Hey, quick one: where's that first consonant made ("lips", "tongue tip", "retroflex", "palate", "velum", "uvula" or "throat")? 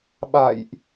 lips